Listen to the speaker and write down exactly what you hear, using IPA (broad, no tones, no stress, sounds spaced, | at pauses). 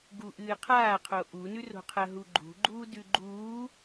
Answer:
ɡ u ʔ ɨː qʰ aː qʰ o ʔ u n ʉ r o̤ qʰ ɐ ɦ u ɡ͡ǃ ṳ ɡ͡ǃ uː d ʉ ɡ͡ǃ uː